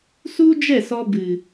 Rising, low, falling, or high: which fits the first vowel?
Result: high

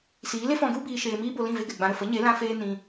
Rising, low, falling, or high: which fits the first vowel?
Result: rising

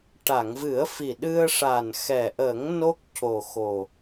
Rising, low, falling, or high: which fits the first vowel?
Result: low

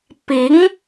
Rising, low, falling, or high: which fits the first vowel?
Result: rising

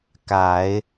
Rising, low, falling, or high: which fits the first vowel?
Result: low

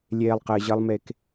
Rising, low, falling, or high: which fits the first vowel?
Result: low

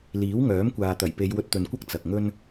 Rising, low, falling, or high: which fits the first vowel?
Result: rising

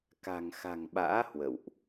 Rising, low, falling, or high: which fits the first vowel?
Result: low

